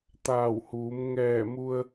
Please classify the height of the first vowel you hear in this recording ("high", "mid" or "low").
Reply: low